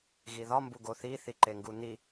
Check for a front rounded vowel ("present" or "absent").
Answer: absent